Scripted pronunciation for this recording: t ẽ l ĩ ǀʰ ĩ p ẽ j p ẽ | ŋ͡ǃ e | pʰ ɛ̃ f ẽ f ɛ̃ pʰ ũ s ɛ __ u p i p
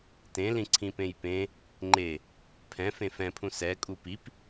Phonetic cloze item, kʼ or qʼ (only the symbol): kʼ